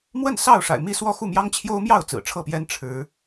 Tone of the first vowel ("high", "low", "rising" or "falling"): falling